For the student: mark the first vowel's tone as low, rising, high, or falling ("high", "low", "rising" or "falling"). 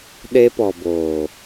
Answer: high